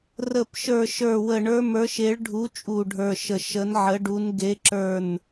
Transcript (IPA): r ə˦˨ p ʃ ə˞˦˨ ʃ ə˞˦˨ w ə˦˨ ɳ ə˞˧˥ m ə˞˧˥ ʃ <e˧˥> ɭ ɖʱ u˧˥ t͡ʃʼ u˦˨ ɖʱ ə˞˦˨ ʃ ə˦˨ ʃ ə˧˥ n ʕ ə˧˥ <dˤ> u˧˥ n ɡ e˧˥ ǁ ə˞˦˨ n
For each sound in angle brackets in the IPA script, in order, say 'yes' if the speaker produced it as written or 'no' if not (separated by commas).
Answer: yes, no